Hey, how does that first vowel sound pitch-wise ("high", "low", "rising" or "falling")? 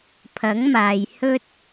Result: rising